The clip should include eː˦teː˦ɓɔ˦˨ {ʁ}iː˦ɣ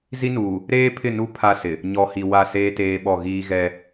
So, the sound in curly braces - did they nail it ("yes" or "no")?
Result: no